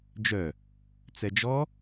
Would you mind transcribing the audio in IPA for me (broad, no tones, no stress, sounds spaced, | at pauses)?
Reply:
d͡ʒ œ | t͡s ɛ d͡ʒ ɔ